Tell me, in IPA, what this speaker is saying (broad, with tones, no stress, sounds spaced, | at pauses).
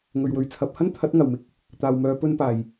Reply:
ŋ ɵ˨ ɥ w ɵ˨ ɥ t͡sʰ ɐ˨˥ p̚ h ɐ˥ n t̪ʰ ɐ˨˥ t̚ ŋ ɐ˨˩ w m ɪ˧ k̚ | t̪ aː˨ w m œː˨˧ p ɵ˧ n p aː˨˩ j